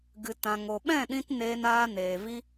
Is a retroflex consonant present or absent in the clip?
absent